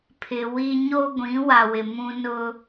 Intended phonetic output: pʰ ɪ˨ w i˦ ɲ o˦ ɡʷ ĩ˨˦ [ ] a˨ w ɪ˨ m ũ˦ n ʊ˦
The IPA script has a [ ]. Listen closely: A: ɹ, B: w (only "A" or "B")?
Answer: B